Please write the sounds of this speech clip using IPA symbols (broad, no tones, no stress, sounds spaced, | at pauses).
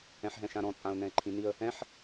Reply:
ɛ̃ ħ ɦ ɛ̃ ʃ ã ɾ ɔ̃ t͡sʼ ã ʊ̯ n ɛ̃ ɪ̯ ǃʰ ĩ n i ə̯ | ɛ̃ ħ